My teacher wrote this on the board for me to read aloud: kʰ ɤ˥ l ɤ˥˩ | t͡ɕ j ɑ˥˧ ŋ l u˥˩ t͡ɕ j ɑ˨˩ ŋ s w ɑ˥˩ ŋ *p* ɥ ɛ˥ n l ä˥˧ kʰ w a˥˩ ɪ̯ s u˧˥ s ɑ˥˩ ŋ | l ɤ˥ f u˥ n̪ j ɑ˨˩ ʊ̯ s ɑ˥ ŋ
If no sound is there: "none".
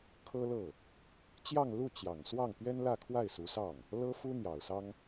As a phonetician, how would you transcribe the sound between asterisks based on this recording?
p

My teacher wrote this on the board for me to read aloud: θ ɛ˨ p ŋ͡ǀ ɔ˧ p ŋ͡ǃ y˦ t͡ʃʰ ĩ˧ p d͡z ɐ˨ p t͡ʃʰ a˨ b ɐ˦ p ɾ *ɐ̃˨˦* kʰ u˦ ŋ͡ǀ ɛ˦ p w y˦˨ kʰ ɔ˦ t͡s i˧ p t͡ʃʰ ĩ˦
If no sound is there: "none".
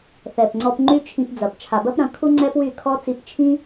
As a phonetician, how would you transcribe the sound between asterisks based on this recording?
ɐ̃˨˦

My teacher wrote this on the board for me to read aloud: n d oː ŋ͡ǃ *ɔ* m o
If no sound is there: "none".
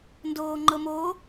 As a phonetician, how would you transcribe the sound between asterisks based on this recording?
ɤ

